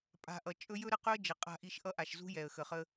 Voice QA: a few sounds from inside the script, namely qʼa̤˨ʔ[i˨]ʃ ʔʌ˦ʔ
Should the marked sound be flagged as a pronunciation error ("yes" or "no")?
no